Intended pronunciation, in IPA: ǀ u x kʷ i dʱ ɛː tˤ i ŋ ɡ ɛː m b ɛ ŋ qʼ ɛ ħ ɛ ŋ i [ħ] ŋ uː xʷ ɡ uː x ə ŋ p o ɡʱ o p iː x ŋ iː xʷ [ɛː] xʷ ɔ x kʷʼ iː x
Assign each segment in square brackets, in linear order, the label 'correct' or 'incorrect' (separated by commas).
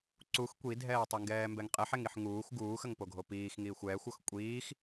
correct, correct